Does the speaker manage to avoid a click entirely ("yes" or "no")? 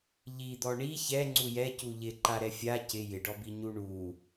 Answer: no